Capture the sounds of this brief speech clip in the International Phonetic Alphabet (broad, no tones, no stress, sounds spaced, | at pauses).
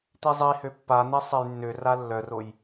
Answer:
t̪ i zˤ i h ø pː a n̪ e sˤ e j nː ø r a lː œ r o j